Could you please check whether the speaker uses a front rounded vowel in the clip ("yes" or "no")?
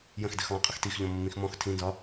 no